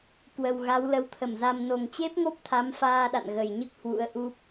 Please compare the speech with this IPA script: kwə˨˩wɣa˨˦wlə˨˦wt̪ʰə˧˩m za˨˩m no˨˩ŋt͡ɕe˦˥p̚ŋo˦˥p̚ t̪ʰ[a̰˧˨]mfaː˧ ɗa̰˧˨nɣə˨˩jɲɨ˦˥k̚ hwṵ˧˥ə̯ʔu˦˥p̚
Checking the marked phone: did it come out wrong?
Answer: yes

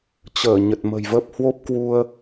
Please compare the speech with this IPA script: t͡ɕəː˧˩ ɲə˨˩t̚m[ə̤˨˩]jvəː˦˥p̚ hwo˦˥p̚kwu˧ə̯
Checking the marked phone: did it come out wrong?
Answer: no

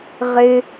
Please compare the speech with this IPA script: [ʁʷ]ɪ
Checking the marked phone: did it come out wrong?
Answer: yes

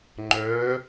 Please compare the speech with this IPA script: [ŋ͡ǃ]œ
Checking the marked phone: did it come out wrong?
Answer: no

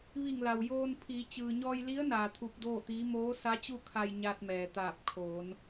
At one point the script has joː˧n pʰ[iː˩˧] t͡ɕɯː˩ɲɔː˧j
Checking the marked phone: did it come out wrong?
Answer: no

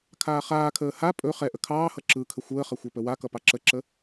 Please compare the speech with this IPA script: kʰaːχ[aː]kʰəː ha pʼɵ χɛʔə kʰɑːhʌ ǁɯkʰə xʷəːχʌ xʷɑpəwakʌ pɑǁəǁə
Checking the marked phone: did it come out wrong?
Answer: no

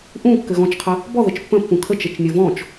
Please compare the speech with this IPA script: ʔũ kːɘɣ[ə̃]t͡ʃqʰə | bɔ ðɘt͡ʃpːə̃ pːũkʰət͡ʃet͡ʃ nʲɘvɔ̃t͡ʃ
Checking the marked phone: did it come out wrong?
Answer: yes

